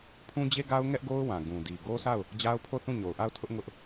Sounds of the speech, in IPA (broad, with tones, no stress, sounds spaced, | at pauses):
pʰ ũ˦ d͡ʑ e˦ ɡ a˦ ʊ̯ ŋ ɛ˦ ʔ ɡ o˦ ʊ̯ w ã˨ ɡ ũ˨ d i˨ ɡ o˦ sʰ a˦˨ ʊ̯ | d͡ʑ a˦ ʊ̯ pʰ o˦˨ θ ũ˦˨ ɲ o˨ ʊ̯ ʔ a˦˨ ʊ̯ tʰ ʊ˦ ʔ ŋ ʊ˦ ʔ